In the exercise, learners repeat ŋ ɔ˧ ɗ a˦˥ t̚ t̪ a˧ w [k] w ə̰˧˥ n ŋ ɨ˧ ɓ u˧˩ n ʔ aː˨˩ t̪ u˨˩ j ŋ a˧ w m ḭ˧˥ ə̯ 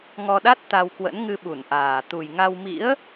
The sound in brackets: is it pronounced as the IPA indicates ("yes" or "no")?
yes